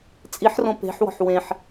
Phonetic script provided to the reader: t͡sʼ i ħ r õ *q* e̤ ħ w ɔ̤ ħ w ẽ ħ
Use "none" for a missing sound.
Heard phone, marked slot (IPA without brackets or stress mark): p